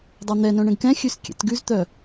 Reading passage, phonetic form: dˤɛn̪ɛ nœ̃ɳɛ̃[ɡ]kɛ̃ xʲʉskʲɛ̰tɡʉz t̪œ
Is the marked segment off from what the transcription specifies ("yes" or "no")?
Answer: no